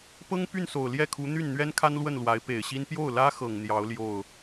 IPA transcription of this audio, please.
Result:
p ɤ˥ ŋ p y˥˩ n s o˨˩ ʊ̯ l j ɛ˥˩ kʰ u˧˥ n̪ y˥˩ n n̪ ɥ ɛ˥ n kʰ a˥ n l w ə˥˩ n l w a˧˥ ɪ̯ p e˨˩ ɪ̯ ɕ i˥ n p j o˥˩ ʊ̯ l ä˥ x ɤ˨˩ ŋ n̪ j ɑ˧˥ ʊ̯ l j o˥˩ ʊ̯

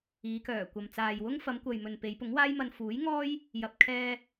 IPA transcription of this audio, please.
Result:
iː˨˧ k œː˨˩ kʷ ɐ˨ m t͡s aː˨ j w ʊ˥ ŋ f ɐ˨˧ m kʷ ɐ˨ j m ɵ˨ n p e˨˧ j p ʊ˨˥ ŋ w aː˥ j m ɐ˧ n f uː˨˥ j ŋ ɔː˥ j | j ɐ˨ p̚ kʰ ɛː˧

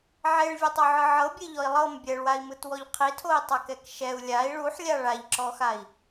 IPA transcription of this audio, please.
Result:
ʕ e ɭ vʲ ɛ tˤ o ʕ ɯ ʕ ɤ bʲ e ʎ ɔ i̯ lˠ ɤ m bʲ ɛ ɭ w a i̯ m ɯ t w ɔ ʎ qʰ i tʰ o i̯ tˤ a k ɛ k ʃ ɛ u̯ lʲ a i̯ ɭ u ħ lʲ a ɭ a ʎ ǁ ɔ x a i̯

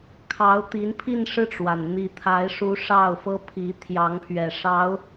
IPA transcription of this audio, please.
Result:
kʰ ɑ˧˥ ʊ̯ t̪ i˧˥ n pʰ i˥˧ n ʂ ɻ̩˥˩ ʈ͡ʂ w a˩ n n̪ i˧˥ t̪ʰ a˧˥ ɪ̯ ʂ u˧˥ ʂ ɑ˥˩ ʊ̯ f ɤ˥ pʰ i˧˥ t̪ʰ j ɑ˧˥ ŋ pʰ ɥ ɛ˨˩ ʂ ɑ˧˥ ʊ̯

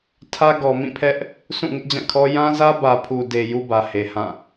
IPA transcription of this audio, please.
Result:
tʰ ä˦ ɡ ɔ˨ m ĩ˦˨ pʰ ɛ˦ ʔ | s ũ˦˨ ŋ ɪ˦ ʔ d͡ʑ ã˦˨ kʰ ɔ˦ j ã˦ z ä˦ b ä˨ pʰ u˨ d e˨ j u˦ b ä˨ h e˨ h ã˦˨

